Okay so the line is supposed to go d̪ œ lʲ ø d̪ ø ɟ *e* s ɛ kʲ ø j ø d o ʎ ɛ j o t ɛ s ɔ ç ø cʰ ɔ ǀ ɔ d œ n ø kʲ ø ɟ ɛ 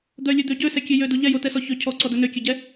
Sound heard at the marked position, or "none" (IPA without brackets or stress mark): ø